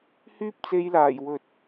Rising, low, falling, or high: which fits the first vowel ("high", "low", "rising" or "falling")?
high